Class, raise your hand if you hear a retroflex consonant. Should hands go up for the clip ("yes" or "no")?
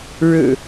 yes